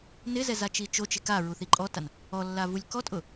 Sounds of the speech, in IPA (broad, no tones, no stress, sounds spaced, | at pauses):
n ɪ z ɛ z a t͡ʃ i t͡ʃ o t͡ʃ ɪ k a ɹ u θ i ǃʼ ɔ t a n | ɔ lː a v u lʲ k ɔ tʼ ʊ